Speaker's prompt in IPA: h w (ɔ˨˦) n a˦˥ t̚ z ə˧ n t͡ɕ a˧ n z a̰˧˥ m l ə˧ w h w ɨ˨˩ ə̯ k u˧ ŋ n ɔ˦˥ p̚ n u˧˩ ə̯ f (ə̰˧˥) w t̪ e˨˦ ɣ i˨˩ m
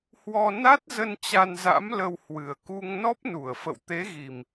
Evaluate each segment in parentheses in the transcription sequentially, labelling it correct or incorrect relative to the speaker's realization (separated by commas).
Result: incorrect, incorrect